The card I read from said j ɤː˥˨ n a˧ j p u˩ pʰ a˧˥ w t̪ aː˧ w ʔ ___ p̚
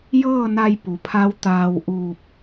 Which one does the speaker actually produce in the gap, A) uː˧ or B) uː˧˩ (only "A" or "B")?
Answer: B